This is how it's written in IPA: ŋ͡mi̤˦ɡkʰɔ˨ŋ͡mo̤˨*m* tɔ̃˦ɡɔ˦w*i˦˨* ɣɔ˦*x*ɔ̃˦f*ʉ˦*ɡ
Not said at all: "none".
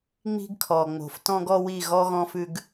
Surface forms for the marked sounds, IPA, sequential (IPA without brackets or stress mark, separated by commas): f, i˦˨, ɣ, ʉ˦